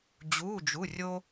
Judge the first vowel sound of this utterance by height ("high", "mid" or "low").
high